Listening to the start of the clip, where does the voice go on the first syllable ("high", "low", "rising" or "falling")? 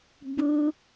high